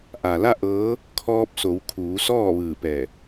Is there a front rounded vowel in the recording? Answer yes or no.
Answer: no